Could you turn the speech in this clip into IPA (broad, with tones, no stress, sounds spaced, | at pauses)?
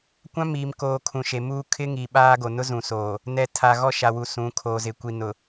kʷ ã˦ m iː˨ m k oː˨ kʰ ũ˨ ʃ e˨ m uː˦ kʰ ɪ˦ ŋ i˨ ɓ aː˦ ɡ o˨ n ʊ˦ z ũ˨ s oː˨ | n ɛ˨ tʰ a˨ ɣ ɔ˦˨ ʃ a˨ w u˨ s ũ˨˦ kʰ oː˨ z ɪ˨ kʷ i˨ n ʊ˨